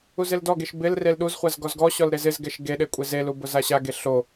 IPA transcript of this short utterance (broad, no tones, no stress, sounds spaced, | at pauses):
u z ɪ l d ɔ ɡ e ʃ b ɪ l r e l ɗ u z χʷ a z ɡ ɔ z ɡ ɔ ɕ ɔ l ɾ e z ɪ z ɡ ɛ ʃ ɡ e ɗ e kʷʼ e z e l u b ʊ z a ɕ a ɡ e ɬ o